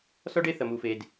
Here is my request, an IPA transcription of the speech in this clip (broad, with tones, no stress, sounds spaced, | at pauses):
s ɔ˦ ɖ e˦ θ ɐ˨ m u˨ f e˨ d